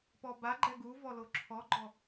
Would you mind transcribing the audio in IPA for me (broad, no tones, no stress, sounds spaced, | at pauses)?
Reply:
p ɔ b a ɡ͡ǃ ɛ ɡ u v ɔ l o ǁʰ ɔ ɡ͡ǃ ɔ